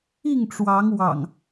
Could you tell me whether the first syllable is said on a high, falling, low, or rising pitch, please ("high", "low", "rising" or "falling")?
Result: falling